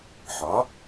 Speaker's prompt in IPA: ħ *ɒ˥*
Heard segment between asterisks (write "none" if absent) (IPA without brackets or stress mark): ɒ˩˥